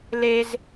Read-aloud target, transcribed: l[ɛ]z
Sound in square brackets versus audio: incorrect: e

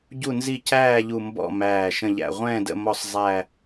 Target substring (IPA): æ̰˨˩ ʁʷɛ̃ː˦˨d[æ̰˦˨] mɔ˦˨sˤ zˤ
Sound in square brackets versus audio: incorrect: ə̰˦˨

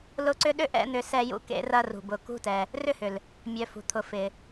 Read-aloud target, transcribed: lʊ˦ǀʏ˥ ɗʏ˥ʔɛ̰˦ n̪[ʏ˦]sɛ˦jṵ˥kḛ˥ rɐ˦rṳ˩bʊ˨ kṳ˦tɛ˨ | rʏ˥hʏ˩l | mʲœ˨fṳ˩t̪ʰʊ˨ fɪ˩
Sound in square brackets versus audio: correct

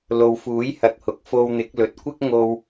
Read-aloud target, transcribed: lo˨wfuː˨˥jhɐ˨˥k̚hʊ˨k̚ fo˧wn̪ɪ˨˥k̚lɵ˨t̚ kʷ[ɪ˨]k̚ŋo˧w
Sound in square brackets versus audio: incorrect: ɪ˥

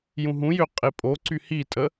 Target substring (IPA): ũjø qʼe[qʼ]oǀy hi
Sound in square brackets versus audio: incorrect: pʼ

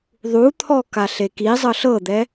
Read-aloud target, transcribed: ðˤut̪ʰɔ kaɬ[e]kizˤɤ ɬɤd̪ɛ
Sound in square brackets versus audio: correct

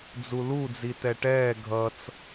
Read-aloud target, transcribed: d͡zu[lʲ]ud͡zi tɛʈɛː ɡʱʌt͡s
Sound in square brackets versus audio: incorrect: l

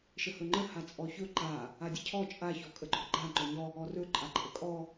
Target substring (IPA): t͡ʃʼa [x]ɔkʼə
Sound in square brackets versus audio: incorrect: ç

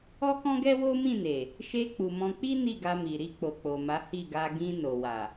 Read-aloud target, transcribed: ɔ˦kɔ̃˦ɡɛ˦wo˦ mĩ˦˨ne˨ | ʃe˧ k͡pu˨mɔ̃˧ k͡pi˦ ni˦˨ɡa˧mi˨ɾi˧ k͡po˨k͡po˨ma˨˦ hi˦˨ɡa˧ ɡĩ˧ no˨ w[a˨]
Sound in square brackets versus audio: correct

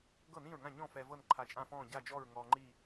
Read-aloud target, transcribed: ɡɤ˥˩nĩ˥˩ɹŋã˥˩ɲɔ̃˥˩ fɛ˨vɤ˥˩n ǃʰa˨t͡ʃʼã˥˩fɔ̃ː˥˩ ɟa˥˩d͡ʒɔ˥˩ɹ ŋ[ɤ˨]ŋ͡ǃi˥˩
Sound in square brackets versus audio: incorrect: ɔ˨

